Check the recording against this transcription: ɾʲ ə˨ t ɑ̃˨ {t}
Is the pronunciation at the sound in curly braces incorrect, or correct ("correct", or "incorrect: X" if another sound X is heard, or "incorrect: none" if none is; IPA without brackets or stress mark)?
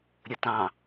incorrect: none